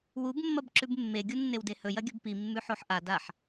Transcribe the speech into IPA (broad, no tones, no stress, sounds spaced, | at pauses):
w u b mː ɐ b ǁ ʉ b mː e ɡʲ u nː e w d e h ɵ j ɐ ɡʲ ɵ b p i mː ʉ ħ o ħ ʔ a d a ħ